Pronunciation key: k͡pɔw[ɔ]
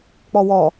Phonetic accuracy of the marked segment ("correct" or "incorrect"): correct